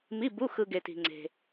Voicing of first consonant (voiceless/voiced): voiced